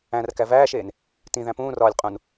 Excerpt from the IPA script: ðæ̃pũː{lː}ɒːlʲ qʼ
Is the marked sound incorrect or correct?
incorrect